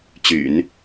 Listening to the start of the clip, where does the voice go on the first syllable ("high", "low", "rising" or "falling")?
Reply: low